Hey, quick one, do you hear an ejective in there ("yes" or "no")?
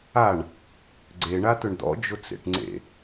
no